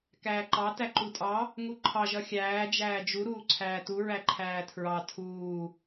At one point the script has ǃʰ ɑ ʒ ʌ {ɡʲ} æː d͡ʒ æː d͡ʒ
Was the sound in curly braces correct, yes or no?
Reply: no